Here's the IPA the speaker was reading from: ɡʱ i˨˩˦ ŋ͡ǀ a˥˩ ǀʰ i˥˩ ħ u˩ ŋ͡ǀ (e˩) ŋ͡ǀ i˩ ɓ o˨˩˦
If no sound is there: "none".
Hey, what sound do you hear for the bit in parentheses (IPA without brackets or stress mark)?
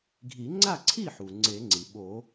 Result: e˨˩˦